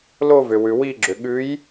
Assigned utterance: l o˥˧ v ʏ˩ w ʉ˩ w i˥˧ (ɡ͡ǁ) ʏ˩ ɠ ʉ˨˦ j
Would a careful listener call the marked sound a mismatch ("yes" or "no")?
no